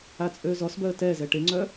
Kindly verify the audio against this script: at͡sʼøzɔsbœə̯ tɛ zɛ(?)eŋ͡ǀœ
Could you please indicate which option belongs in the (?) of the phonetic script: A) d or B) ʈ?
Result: B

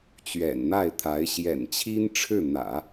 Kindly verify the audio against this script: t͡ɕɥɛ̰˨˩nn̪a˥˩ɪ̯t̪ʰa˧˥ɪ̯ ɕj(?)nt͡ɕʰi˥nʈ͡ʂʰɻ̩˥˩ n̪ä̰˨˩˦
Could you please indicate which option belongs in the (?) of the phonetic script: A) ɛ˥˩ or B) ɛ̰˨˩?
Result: B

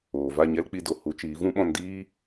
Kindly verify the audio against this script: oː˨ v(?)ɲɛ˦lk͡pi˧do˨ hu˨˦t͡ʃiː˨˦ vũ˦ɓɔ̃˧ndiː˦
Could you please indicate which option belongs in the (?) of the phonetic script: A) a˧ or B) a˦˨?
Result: B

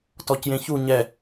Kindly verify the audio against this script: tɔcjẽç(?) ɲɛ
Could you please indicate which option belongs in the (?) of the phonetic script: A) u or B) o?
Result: A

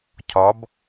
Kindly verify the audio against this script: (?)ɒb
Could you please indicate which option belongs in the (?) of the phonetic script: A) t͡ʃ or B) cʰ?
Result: B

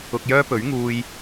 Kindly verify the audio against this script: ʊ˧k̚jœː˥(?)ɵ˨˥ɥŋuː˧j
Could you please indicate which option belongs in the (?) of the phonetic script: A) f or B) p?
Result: B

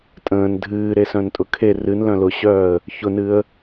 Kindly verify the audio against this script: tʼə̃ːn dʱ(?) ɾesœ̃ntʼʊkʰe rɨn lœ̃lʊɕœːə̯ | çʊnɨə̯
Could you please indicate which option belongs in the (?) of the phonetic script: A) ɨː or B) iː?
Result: A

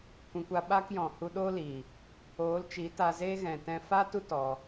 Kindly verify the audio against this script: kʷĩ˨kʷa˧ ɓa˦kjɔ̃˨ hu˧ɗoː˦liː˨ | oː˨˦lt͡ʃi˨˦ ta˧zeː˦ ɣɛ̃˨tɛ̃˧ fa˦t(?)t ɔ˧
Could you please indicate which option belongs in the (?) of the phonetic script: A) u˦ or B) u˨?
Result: A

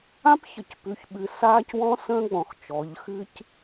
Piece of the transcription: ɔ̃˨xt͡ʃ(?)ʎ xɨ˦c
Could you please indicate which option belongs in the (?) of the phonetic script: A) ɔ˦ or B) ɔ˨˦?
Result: B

